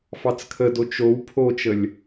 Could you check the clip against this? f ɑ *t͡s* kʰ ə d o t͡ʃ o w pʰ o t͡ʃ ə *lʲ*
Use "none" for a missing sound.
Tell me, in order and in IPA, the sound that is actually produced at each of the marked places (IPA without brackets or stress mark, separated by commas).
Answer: t͡s, lʲ